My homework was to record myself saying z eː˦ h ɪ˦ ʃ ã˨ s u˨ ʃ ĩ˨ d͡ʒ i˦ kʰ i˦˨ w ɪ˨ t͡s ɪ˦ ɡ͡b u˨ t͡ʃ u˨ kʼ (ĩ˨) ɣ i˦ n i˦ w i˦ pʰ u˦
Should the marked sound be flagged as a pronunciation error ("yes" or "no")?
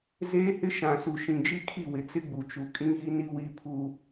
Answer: yes